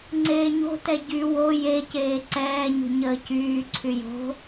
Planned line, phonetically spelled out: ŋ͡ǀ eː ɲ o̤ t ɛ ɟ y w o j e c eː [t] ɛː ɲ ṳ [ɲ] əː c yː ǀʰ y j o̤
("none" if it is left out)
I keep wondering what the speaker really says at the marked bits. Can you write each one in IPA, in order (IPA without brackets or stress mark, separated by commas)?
ǀ, ɲ